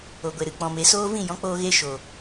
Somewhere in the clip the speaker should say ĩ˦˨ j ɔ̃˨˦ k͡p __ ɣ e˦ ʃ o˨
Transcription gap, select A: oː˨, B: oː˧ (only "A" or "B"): B